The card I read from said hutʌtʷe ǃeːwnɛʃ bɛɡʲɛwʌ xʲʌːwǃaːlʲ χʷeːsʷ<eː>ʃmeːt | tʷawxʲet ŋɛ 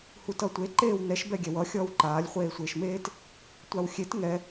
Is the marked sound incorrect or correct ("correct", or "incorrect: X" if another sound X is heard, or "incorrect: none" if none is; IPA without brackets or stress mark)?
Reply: correct